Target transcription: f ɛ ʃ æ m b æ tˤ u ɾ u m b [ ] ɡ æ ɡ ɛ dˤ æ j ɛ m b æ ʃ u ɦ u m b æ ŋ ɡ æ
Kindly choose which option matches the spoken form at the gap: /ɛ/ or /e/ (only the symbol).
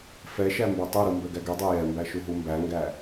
ɛ